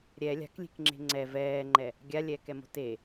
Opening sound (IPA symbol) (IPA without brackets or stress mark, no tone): ɾʲ